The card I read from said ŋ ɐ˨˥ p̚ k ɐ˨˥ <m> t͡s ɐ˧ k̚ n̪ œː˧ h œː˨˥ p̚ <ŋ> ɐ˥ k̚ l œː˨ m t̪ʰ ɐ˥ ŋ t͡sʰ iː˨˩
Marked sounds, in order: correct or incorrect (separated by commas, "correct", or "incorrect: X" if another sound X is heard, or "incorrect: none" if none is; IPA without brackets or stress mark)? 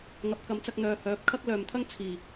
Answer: correct, incorrect: kʰ